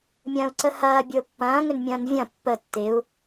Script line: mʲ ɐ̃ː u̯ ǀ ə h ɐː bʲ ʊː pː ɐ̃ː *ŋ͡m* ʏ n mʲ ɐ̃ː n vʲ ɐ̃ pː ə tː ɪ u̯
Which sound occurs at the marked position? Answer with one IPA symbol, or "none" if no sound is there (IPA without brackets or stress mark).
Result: ŋ